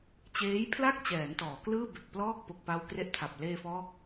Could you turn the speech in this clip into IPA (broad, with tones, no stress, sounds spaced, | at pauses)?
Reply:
t͡ɕ eː˦˥ j pʰ l a˥˩ k̚ t͡ɕ ɛː˩˦ n t ɔː˩˦ k l ɯː˥˩ b e˨˩ k̚ p l ɔː˥˩ k̚ p o˨˩ k̚ p a˧ w k r e˥˩ ʔ tʰ a˨˩ p̚ l eː˧ f ɔː˦˥ k̚